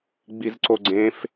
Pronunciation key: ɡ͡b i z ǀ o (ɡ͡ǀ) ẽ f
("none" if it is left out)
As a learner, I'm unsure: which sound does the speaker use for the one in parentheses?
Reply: ɡ͡ǀ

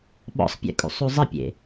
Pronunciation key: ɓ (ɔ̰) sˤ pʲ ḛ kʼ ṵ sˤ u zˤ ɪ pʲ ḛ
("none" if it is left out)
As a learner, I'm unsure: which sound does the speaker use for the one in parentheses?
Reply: ɔ̰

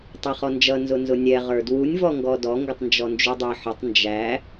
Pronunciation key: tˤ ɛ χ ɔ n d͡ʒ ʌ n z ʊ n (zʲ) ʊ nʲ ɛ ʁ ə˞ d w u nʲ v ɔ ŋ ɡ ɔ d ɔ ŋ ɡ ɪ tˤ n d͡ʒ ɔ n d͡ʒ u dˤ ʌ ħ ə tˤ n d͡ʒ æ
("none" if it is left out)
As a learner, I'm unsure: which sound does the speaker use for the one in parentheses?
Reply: z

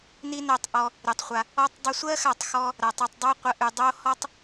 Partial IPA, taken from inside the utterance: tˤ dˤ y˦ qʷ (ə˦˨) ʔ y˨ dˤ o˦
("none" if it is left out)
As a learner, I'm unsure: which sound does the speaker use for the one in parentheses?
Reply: ə˧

